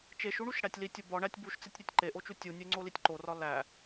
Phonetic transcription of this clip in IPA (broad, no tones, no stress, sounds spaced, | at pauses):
t͡ʃ e ʃ u ɳ u ʃ ɽ æ tʲ l i tʲ o b ɒ ɳ æ tʲ b u ʃ t͡s e tʲ ɾʲ æ tʲ ǃ e ʔ o t͡ʃ u tʲ u nʲ e ŋ͡ǀ o l i tʲ ǃ o r ɒ l æ